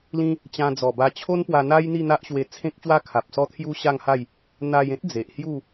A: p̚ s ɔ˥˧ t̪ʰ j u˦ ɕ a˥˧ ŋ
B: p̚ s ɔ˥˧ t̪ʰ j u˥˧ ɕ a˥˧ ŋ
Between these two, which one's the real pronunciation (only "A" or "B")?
A